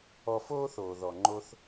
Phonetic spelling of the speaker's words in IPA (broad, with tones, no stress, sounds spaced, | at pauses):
ɔ˧ f oː˦ θ oː˨ ð ɔ˨ ŋ͡ǃ o˧ θ